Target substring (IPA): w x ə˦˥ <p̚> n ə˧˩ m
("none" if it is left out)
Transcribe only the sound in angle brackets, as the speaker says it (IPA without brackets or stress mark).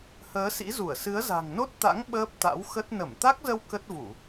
t̚